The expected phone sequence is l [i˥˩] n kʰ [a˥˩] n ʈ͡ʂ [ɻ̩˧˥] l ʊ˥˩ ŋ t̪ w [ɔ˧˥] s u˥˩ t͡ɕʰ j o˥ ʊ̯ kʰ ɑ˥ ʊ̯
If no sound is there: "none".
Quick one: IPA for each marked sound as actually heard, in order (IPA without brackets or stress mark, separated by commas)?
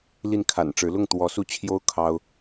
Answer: i˥˩, a̰˨˩, ɻ̩˧˥, ɔ˧˥